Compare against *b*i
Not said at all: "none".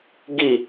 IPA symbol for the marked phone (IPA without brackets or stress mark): ɡ